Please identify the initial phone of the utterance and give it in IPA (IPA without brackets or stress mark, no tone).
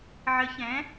ʕ